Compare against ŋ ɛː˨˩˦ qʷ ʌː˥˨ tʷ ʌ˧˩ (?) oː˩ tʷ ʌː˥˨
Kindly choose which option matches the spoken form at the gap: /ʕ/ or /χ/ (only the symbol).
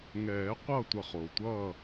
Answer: χ